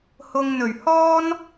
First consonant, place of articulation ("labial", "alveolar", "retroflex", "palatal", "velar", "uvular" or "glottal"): glottal